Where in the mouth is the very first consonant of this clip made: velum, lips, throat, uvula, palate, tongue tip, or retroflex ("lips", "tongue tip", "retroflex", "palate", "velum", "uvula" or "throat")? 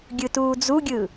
velum